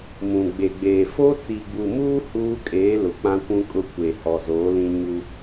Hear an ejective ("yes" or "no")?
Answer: yes